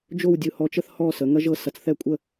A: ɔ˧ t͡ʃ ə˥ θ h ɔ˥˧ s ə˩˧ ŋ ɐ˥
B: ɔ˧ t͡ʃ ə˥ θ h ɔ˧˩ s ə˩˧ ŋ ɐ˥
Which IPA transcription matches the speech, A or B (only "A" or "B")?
A